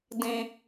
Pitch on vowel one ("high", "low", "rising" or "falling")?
low